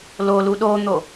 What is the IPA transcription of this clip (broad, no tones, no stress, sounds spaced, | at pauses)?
l o l u ɗ o n̪ o